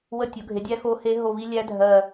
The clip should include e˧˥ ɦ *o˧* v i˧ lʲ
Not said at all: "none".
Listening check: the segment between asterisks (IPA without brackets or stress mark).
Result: o˧˩